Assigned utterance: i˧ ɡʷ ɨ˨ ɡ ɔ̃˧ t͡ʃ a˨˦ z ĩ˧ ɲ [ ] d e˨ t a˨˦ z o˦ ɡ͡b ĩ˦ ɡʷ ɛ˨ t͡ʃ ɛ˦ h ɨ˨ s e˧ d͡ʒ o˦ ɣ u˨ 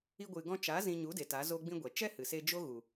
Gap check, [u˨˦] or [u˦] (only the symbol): u˨˦